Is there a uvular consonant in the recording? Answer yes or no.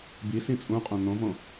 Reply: yes